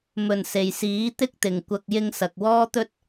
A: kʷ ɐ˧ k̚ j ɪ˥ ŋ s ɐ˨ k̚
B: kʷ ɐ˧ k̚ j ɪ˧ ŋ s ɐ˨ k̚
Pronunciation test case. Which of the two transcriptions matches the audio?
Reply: B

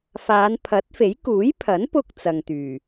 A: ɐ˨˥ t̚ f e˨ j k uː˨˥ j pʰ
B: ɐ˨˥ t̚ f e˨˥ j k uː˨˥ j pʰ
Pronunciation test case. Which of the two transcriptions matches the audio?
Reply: B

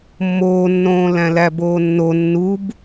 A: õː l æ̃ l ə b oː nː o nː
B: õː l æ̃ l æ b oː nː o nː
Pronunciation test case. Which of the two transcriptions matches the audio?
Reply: B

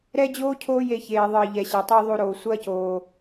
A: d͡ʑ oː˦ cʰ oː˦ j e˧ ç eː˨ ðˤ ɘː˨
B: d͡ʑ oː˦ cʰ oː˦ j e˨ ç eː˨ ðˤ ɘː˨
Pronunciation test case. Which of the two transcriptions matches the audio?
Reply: A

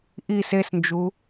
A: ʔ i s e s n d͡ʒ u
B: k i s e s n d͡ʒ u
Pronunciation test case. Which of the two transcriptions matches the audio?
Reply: A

